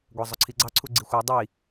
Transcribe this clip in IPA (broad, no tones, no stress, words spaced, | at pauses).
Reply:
ɡʷɑzˤʊǀʰiɡ͡ǀɑ ǀʰuɡ͡ǀixʷɑ dˤi